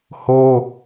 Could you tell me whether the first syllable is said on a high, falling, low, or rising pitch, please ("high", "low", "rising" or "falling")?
high